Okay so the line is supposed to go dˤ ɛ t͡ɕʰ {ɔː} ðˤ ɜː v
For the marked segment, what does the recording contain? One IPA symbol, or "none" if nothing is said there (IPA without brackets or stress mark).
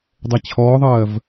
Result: ɔː